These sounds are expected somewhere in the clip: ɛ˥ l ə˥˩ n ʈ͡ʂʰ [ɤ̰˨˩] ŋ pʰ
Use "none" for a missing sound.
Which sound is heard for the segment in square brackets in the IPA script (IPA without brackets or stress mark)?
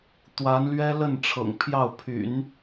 ɤ̰˨˩